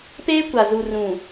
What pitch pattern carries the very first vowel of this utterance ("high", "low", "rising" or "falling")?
high